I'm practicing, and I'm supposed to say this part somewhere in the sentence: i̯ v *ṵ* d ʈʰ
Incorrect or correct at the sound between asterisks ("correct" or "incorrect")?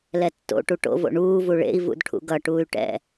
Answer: correct